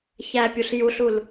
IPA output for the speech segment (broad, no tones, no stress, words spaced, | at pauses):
çæpʲuɬ juɬul